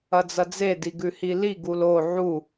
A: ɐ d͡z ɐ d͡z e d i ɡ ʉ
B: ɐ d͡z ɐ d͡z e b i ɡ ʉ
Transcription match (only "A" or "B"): A